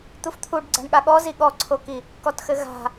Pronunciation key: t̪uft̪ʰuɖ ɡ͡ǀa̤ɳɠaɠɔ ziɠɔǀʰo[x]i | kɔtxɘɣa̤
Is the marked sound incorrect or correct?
incorrect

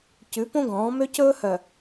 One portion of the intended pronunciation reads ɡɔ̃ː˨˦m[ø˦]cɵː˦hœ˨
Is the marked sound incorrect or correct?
correct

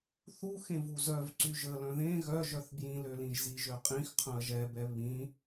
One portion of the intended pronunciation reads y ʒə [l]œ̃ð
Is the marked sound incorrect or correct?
correct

